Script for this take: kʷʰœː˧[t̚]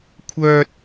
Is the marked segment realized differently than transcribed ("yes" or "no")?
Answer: no